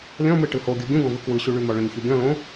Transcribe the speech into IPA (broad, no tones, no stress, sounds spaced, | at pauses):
lʲ ɔ̃ m ɯ ʈ ɯ h o ɡʲ u ɡʲ ũ ɡ ɔ̃ v ɯ k w ɯ ɕ u ɭ y m ɔ ɭ œ̃ ɲ ç u ɡʲ ɔ̃ l õ